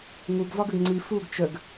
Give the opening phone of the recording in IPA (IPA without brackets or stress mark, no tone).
ŋ